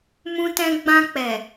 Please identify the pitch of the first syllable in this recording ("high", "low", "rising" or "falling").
high